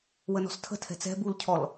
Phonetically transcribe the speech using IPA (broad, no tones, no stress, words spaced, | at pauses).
wənɔ̤stʰə̤ tʰɛ̤t͡sɛ̤ bulcʰɔl